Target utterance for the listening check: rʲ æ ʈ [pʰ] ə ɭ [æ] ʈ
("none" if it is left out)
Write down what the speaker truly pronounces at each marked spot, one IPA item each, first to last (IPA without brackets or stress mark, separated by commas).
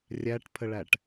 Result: pʰ, æ